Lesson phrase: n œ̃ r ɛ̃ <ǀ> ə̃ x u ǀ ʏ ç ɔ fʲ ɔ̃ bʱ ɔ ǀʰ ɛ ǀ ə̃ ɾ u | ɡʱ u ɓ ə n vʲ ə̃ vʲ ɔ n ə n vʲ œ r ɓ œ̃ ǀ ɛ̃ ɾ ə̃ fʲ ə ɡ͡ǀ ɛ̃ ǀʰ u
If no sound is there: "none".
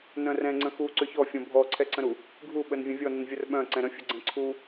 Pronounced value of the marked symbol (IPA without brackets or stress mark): ŋ͡ǀ